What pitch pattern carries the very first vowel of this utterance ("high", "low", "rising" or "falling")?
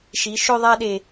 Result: rising